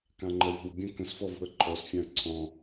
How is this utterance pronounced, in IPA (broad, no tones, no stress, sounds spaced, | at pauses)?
k ã ŋ͡ǃ ə w ɔ̤ w bʲ ə̃ k ə̃ s f ɔ v ṳ ə̯ ǃʰ ɔ s fʲ ã ə̯ ǀʰ ɔ̃